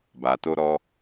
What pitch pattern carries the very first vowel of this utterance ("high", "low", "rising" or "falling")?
low